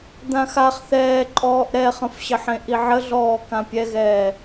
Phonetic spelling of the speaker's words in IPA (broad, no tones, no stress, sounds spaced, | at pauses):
d̪ ã x a χ θ ɛː ǃʼ ɔː ʔ ɾ ɛ χ ə̃ f ɕ ə ħ ẽ ʔ i ʕ ə ɮ ɔː k ã pʲ ɛ ɣ ɛː